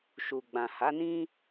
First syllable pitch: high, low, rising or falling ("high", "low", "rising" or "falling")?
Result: low